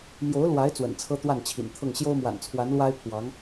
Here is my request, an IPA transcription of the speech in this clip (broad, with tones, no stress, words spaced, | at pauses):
mjo˧˥ʊ̯lwa˧˥ɪ̯ t͡swə̰˨˩nt͡sʰɤ˥t̪wa˥˩nt͡ɕʰḭ˨˩n t̪ʰɤ˥˩ŋ ɕjo˥ʊ̯mwa̰˨˩nt͡sʰwa˧˥n lwa˥ɪ̯pʰwɑ˧˥ŋ